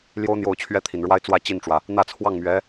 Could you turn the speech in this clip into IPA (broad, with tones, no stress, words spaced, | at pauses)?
ljo˥ʊ̯ n̪jo˥˩ʊ̯t͡ɕʰɥɛ˥t̪ʰi˨˩nɻwa˥ɪ̯ t͡swä˥˧ t͡ɕi˥˩nʈ͡ʂwä˩ | n̪ä˥˧t͡sʰwɑ˥˩ŋmɥɛ˧˥